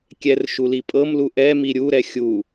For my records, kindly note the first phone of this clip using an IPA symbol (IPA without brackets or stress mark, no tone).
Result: kʲ